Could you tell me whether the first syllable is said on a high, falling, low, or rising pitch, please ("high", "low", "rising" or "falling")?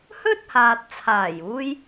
high